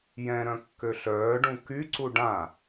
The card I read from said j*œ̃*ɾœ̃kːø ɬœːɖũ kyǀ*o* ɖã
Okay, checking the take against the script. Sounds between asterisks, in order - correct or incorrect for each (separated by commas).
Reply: incorrect, incorrect